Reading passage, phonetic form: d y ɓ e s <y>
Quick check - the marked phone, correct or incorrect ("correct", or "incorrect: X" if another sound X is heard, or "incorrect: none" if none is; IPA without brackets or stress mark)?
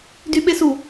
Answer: incorrect: u